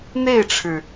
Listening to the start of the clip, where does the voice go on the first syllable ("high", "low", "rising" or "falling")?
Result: falling